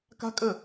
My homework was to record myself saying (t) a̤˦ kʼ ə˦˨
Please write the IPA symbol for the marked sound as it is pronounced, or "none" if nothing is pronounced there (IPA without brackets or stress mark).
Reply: k